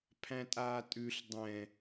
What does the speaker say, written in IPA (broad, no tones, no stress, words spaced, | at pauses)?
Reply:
pʰæ̃tʼaːtʼʉɬ dˤɛ̃